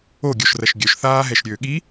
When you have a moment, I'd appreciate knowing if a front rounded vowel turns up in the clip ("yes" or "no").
yes